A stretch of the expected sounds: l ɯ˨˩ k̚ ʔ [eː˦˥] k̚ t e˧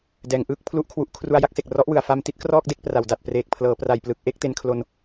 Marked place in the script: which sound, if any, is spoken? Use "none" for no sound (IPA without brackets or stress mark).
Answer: e˦˥